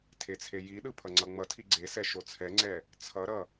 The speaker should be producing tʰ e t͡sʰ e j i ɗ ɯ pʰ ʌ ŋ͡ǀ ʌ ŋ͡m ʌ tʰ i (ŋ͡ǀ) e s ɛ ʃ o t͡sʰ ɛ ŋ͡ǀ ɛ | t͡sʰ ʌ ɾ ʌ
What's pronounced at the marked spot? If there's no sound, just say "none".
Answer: ɡ͡ǀ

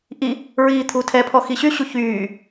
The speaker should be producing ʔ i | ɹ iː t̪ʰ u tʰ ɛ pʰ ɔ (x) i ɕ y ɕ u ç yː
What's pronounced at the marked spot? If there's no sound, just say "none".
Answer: x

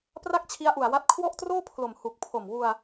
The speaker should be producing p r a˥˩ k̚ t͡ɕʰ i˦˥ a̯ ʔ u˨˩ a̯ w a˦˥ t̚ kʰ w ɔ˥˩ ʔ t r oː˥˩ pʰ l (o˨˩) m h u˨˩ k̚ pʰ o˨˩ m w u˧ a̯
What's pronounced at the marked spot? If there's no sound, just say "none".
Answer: o˨˩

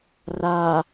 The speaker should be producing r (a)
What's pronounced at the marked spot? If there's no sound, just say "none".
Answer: a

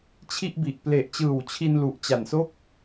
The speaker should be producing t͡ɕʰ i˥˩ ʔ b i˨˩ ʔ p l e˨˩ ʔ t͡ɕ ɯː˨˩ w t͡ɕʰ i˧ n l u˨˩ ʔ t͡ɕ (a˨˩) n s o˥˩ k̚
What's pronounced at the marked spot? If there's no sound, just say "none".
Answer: a˨˩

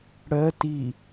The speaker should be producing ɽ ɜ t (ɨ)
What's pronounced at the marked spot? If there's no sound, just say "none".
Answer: i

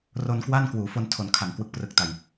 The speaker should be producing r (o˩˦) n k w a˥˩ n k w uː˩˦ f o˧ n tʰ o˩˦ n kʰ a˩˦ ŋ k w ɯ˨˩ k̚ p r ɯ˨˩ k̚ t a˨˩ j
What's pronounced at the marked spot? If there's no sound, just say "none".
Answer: o˧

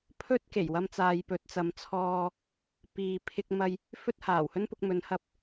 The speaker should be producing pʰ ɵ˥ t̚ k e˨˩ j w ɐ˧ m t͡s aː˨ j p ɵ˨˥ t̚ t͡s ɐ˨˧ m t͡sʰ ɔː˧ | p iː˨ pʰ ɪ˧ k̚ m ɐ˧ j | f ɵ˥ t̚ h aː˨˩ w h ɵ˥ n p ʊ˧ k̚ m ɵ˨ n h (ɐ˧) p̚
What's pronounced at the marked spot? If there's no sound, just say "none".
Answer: ɐ˧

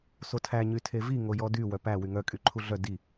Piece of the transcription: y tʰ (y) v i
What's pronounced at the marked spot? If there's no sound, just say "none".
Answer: e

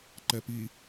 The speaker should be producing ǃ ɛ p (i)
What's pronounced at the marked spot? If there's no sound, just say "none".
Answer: i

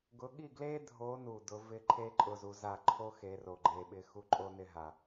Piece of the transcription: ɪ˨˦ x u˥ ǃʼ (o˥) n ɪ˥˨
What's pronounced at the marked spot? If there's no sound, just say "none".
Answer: o˥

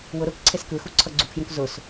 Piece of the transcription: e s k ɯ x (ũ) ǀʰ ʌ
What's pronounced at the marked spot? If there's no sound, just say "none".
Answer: u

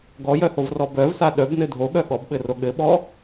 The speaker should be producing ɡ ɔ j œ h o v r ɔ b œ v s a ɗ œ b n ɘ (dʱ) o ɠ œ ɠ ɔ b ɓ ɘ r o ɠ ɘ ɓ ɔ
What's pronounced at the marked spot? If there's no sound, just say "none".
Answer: dʱ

